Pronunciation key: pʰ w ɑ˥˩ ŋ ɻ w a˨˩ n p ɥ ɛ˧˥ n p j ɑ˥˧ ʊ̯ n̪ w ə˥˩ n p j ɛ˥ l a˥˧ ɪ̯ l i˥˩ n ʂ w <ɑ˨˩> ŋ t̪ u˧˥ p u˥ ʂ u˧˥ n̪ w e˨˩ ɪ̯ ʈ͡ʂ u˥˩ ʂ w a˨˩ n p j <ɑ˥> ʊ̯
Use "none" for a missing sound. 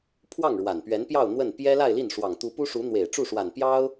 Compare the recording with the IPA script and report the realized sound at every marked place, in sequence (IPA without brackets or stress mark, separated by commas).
ɑ˨˩, ɑ˥